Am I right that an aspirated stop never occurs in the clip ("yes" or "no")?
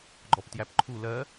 no